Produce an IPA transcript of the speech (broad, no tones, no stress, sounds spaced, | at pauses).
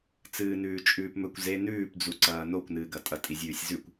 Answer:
t͡s ɨː n ʉː t͡ʃʼ ʉː p m ɵ kʷ z e n ʉː p d͡z u ǀ ɐː n o kʷ n ɨː ɡ ɐ tʼ ɐ tʼ i zʲ ʉː sʲ z ʉ kʷ